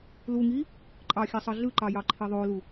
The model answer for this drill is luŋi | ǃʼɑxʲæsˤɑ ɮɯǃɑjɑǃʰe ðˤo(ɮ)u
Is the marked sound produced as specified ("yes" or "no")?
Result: no